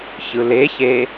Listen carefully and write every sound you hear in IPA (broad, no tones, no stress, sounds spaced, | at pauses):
ç ɯ l e ç e